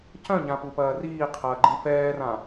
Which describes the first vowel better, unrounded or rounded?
rounded